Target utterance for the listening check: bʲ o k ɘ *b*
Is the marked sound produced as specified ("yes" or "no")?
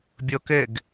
no